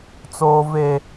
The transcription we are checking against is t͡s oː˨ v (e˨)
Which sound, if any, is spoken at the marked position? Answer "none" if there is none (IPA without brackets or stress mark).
e˨